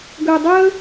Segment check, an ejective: absent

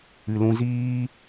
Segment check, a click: absent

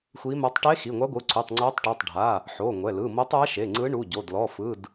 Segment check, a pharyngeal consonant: present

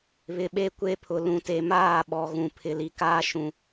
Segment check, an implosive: present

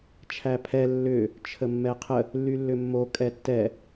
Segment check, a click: absent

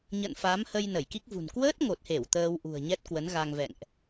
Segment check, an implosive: absent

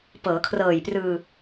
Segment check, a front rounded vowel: absent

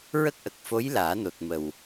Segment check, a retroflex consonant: absent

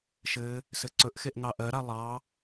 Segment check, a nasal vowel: absent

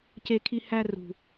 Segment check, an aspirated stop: present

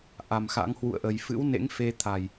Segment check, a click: absent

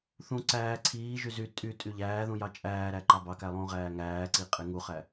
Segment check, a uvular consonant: present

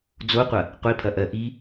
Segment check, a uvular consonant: present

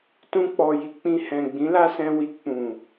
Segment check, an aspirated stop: absent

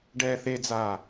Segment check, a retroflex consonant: present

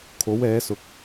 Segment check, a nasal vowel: absent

